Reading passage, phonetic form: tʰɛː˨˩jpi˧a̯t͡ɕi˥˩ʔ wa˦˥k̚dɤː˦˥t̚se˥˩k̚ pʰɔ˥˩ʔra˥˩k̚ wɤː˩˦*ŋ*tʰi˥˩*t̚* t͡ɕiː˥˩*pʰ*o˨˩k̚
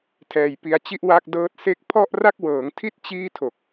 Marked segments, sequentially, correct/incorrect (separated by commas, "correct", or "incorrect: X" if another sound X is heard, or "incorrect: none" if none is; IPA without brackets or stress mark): correct, correct, incorrect: tʰ